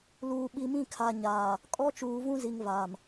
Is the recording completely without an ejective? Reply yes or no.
no